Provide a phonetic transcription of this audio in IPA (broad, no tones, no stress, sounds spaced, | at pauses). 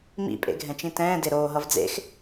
m ḭ pʼ ḛ ɡʱ ɛ̃ t͡ʃ ĩ t ɛ̃ː d e ɾ oː ɦ ʌ v d͡z ḛ x